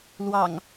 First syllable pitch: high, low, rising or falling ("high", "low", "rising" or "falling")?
low